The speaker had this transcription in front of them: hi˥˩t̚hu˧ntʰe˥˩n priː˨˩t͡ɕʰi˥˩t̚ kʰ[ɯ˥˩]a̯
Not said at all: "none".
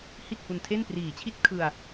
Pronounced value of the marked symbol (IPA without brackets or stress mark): ɯ˧